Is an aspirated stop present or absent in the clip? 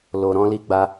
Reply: absent